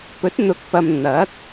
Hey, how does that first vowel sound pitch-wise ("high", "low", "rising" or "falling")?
rising